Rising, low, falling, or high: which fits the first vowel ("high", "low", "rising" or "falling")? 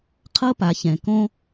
high